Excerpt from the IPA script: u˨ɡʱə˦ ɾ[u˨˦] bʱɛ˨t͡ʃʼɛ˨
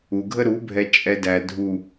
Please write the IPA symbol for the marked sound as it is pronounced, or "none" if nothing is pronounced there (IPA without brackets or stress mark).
u˨˦